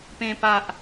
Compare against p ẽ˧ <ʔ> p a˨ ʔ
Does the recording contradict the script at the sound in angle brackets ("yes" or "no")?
yes